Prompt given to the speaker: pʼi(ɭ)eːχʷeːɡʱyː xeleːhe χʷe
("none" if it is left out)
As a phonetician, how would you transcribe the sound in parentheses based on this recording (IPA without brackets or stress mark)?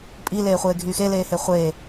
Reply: l